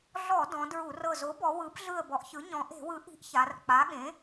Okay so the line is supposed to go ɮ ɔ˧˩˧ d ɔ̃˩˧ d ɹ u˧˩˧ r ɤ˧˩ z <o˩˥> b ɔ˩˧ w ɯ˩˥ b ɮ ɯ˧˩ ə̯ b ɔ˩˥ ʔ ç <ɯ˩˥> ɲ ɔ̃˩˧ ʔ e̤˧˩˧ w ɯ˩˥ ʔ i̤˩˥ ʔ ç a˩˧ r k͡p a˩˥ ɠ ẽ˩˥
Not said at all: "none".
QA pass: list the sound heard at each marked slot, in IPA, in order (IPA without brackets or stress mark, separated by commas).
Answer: o˩˥, ɯ˩˥